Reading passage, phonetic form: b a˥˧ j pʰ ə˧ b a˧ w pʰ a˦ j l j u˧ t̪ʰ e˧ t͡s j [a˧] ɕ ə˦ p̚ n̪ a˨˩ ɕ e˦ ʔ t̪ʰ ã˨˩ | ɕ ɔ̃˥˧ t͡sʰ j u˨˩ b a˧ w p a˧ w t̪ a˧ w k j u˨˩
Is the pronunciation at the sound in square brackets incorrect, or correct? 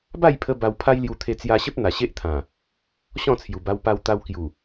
correct